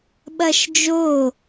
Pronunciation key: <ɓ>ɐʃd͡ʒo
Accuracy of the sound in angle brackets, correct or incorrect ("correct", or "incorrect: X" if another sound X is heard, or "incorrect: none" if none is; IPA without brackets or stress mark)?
correct